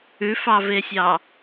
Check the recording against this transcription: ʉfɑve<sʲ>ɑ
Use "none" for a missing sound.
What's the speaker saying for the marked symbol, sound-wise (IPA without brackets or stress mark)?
sʲ